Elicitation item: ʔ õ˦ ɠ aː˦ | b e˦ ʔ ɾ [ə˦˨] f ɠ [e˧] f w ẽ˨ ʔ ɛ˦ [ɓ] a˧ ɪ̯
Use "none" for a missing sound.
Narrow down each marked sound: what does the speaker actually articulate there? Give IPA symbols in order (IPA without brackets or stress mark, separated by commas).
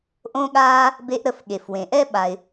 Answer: ə˦˨, e˨, ɓ